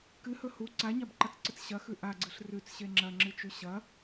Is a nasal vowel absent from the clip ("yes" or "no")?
yes